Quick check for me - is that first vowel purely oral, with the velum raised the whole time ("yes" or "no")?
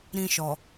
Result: no